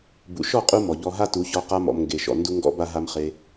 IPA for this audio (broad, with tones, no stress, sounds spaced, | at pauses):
b ṵ˨ ʃ ɔ˦˨ qʼ u˧ m ɔ˨ ʎ ɔ˧ ɦ a˦ t u˨˦ ç ɔ˧ q a˧ m ɔ̰˨ m ŋ ɡ e˨ ʃ ɔ̰˨ n d u˦ ŋ ɡ ɔ̰˦ b a˦ ɦ a˧ m χ e˧